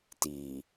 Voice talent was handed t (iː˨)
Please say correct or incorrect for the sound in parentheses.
correct